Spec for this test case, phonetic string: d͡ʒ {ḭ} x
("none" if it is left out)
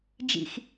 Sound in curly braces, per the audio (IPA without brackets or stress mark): ḭ